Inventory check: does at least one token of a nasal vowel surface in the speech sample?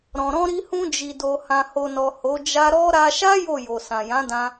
yes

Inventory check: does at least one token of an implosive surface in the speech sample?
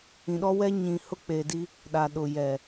yes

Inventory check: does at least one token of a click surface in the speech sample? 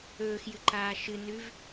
yes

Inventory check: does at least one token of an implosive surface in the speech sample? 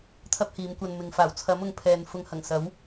no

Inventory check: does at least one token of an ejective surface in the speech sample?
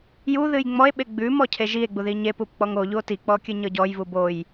no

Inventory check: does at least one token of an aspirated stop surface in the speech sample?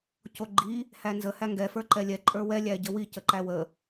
no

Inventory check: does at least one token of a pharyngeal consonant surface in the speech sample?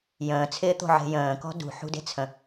yes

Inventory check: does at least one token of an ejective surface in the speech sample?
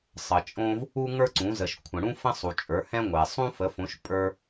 yes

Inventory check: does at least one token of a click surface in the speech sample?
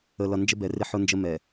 no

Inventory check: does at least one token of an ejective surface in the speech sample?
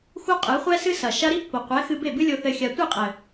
yes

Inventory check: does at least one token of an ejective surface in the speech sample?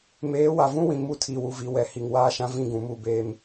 no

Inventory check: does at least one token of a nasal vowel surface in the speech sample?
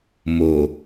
no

